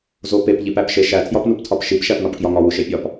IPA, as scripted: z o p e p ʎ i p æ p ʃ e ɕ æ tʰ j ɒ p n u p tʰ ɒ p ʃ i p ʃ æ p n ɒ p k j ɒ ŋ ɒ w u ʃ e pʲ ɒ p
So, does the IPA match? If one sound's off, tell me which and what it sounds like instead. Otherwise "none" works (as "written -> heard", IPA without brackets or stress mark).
ɕ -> ʃ